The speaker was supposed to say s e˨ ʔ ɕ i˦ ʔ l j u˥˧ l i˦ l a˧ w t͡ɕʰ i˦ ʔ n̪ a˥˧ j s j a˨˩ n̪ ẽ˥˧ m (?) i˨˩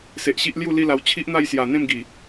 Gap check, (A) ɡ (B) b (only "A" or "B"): A